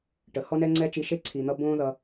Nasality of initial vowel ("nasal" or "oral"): oral